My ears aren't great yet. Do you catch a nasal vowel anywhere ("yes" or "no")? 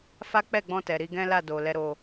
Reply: yes